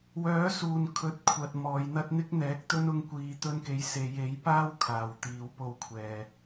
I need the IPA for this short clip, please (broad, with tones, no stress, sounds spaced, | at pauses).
w œː˨˥ s uː˨ n kʰ ɵ˨˥ t̚ kʷʰ ɐ˨ t̚ m ɔː˨˧ j n̪ ɐ˥ t̚ n̪ ɪ˥ k̚ n̪ ɛː˨˥ k̚ t̪ ɵ˥ n ʊ˧ ŋ kʷ iː˨ t̪ ɵ˧ n k e˨˥ j s e˨˧ j e˨˥ j p aː˥ w kʰ aː˨ w t̪ iː˨˧ w p o˧ w kʷʰ ɛː˨